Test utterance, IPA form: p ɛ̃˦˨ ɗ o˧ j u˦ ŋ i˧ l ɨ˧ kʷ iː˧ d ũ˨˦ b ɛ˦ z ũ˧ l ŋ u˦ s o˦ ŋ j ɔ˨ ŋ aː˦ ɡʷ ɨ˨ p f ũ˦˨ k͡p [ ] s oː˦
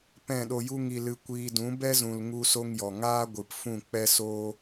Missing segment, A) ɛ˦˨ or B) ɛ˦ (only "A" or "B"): B